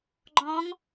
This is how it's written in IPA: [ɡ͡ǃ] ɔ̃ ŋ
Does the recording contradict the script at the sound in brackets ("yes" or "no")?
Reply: no